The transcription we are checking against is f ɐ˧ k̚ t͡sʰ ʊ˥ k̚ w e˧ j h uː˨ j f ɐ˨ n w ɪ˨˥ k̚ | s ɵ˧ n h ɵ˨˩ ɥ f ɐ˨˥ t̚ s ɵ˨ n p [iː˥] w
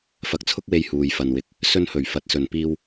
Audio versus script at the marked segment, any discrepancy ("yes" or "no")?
yes